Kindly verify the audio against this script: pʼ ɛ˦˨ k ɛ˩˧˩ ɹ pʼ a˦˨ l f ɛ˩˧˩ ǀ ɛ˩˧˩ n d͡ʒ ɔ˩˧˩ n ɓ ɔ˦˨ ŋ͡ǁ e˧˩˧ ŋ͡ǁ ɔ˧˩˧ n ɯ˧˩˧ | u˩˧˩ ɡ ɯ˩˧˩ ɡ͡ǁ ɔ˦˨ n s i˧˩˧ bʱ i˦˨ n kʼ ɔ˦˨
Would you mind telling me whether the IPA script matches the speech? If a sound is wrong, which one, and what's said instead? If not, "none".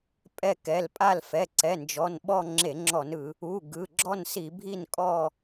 ɹ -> l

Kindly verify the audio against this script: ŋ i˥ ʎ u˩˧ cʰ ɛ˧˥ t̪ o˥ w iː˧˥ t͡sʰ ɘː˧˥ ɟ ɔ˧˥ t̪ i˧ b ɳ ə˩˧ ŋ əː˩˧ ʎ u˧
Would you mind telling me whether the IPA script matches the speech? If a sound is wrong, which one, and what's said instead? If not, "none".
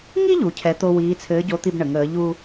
ɔ˧˥ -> o˧˥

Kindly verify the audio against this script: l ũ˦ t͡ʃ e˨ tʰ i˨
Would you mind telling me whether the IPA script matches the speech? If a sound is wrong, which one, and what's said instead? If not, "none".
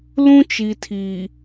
e˨ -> i˨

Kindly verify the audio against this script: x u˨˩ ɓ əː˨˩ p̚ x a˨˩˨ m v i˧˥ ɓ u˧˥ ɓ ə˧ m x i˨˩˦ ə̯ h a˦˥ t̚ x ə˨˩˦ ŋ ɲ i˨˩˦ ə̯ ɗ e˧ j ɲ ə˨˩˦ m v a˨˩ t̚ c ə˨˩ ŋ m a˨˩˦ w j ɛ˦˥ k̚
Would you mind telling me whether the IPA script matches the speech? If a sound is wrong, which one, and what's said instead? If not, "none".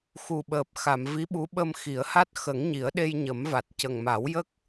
ɛ˦˥ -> ə˦˥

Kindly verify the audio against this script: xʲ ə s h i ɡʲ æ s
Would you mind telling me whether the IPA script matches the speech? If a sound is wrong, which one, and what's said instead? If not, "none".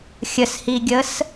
æ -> ə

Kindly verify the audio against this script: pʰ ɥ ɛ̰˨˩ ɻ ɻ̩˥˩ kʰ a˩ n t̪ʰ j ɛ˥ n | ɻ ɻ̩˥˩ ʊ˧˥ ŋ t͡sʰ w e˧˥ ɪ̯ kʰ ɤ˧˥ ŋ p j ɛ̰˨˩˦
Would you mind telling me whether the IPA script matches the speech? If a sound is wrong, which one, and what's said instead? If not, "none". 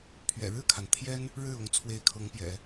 none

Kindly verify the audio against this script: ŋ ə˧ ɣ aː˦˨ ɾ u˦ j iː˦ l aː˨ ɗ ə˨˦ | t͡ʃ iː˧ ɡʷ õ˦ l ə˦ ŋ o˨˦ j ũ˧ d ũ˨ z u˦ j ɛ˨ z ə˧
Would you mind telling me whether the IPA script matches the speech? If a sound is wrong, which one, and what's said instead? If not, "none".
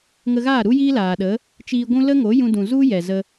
õ˦ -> ũ˦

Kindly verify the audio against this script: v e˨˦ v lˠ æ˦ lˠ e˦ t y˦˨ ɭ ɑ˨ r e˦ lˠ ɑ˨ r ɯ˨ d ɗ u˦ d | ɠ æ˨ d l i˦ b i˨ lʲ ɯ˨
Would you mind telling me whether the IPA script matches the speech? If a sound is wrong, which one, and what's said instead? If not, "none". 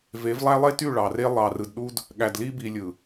none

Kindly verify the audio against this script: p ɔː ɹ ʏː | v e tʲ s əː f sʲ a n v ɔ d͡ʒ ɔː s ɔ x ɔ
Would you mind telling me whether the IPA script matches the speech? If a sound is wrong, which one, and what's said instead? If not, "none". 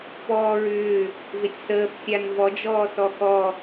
none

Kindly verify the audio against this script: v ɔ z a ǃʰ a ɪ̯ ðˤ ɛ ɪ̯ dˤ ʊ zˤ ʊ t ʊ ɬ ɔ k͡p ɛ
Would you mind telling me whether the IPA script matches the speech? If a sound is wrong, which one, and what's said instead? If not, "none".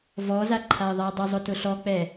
none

